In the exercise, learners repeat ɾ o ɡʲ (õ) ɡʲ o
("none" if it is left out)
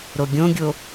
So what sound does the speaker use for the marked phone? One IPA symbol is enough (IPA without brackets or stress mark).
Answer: õ